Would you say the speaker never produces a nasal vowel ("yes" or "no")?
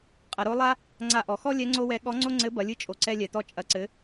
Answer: yes